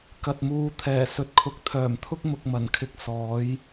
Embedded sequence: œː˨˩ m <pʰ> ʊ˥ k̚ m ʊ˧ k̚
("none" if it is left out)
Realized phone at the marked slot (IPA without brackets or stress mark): t̪ʰ